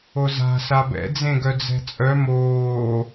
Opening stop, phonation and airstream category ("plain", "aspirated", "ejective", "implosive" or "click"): plain